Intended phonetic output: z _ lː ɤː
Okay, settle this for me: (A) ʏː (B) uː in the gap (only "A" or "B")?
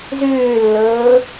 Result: A